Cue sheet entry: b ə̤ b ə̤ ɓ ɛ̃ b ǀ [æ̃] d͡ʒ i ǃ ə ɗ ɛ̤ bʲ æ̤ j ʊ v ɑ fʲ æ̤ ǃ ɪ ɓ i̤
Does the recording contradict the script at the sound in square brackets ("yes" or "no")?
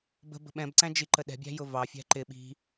no